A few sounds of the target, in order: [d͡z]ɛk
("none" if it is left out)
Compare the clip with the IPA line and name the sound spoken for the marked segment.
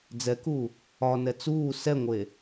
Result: d͡z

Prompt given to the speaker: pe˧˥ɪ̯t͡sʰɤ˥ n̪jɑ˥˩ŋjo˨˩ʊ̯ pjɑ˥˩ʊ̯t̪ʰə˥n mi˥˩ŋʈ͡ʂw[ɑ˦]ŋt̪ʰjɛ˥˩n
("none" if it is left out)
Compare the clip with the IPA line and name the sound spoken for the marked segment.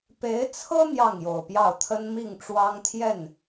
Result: ɑ˥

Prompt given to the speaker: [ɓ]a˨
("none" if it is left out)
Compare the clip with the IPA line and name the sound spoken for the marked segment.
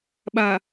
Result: ɓ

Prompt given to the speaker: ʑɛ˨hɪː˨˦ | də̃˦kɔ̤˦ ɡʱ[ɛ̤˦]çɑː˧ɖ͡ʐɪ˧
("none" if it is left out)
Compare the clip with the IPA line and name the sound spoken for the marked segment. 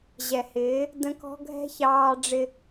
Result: ɛ̤˦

